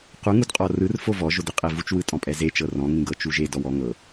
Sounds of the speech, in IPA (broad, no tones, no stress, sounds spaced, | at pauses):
q u ŋ u d qʼ ɔ r ɯ r f o v ɔ ʒ o d e qʼ e v u t͡ʃ w ɯ tʼ ɔ̃ pʼ ɛ z e t͡ʃ ɤ r ɔ̃ ŋ ĩ ɡ ɤ t͡ʃ u ʒ e d ɔ w ɔ ŋ ɤ